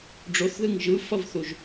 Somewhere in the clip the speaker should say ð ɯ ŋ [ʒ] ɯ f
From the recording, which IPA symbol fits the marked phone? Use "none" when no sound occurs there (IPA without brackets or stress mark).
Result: ʒ